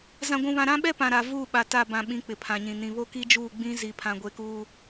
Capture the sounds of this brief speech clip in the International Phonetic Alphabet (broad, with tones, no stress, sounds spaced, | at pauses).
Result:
z ã˦ ɡʷ ũ˦ β ã˦ ɾ ã˦ ɓ ɛ˦ p ã˨ ɾ a˨ v uː˦˨ ɓ a˨ t a˦˨ b ã˨ ɓ ĩ˨˦ k͡p ɪ˨ pʰ ã˨ ɲ ĩ˨ n ĩ˨ β o˦ k i˦ d͡ʒ uː˦˨ ɡ͡b ĩ˦ z i˨ pʰ ã˨ ɡʷ e˨˦ k uː˦